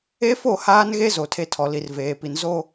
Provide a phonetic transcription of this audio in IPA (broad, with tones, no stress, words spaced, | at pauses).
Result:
e˦fo˦˨haː˦nɣe˦ zo˨tʰe˦tʰɔ˨li˨r veː˨pi˨n zo˦